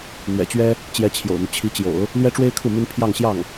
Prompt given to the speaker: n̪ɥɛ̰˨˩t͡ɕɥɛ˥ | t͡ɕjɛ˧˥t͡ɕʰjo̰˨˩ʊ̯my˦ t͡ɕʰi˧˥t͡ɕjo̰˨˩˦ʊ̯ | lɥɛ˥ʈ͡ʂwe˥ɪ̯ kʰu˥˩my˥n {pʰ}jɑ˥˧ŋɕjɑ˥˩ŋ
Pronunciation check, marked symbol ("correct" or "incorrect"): correct